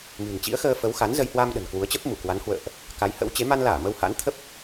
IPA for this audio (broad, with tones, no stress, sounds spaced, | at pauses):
m ɨ̤˨˩ n t͡ɕ ḭ˧˥ ə̯ x əː˧ f ə˨˦ w x a˨˦ n z ə˧ j h w a˧ m ɗ ə̤˨˩ n k w u˨˦ ə̯ t͡ɕ ə˦˥ p̚ m u˧˩ k w a˨˦ n h w ə̰ː˧˨ ʔ | k a˨˦ j h ə̰˧˥ w t͡ɕ e˨˦ m a˧ n l aː˧˩ m ə˧ w h a̰˧˥ n t̪ʰ ə˦˥ p̚